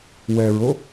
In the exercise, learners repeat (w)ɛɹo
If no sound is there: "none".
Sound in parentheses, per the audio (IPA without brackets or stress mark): w